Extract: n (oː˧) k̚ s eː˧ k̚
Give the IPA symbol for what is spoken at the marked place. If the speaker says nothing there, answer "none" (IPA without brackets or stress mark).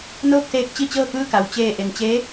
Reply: oː˥˨